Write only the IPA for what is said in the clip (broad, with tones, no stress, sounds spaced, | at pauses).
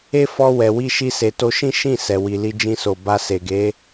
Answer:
e˦ f ɔ˧ w ɛ˨ w i˧ ʃ i˧ s e˨ t o˧ ʃ ĩ˦ ʃ ĩ˦˨ s ɛ˨ w i˨ l i˧ d͡ʒ ĩ˧ s o˨ b a˧ s e˨ ɡ e˨˦